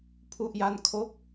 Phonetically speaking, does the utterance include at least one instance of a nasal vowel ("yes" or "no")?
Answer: no